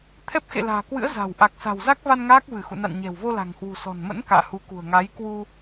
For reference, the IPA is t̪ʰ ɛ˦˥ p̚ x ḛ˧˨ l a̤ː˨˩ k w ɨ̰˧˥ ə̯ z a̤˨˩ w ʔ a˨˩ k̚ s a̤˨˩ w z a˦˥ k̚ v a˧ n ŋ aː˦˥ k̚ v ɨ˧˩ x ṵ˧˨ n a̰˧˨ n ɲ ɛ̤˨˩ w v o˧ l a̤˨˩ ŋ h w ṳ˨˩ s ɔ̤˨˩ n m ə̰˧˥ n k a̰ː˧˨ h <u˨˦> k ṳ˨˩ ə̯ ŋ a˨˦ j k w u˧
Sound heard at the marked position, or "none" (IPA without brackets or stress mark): u˨˦